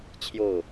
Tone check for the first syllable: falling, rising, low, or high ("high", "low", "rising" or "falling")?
falling